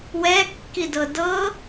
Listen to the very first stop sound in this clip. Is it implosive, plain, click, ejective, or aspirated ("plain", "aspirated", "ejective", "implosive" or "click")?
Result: plain